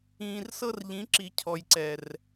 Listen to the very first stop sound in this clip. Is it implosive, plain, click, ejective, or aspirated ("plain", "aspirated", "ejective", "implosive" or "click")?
click